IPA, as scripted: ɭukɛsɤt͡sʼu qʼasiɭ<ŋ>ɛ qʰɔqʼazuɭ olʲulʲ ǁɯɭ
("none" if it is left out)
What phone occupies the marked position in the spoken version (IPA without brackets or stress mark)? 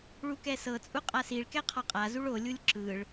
k